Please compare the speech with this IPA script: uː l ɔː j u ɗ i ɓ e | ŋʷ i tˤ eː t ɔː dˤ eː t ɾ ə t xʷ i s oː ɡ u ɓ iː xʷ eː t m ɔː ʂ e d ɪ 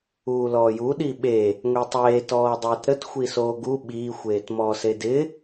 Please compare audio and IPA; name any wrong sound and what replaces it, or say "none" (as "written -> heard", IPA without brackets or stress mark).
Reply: ʂ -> s